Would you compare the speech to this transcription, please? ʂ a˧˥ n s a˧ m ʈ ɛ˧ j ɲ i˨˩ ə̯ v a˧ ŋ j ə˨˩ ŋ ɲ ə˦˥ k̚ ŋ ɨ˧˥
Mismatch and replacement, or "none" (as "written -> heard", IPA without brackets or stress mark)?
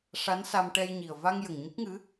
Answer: none